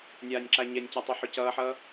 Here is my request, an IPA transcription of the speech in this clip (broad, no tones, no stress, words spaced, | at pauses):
nʲaːnʲǁaɲɛnʲca tˤuħocʌːħʌː